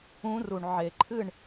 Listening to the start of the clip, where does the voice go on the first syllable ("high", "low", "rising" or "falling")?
rising